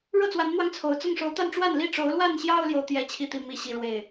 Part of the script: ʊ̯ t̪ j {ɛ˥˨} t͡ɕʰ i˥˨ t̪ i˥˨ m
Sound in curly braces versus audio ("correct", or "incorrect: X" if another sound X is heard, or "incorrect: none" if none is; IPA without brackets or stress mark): correct